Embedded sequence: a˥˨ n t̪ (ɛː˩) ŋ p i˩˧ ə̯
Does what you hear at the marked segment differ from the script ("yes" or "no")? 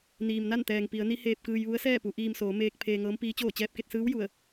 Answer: no